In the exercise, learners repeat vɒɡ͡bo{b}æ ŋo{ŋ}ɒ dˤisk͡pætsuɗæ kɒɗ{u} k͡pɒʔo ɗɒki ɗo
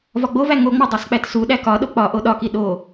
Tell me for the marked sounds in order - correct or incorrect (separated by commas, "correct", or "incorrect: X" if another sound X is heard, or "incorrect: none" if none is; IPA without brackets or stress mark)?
incorrect: v, incorrect: ŋ͡m, incorrect: o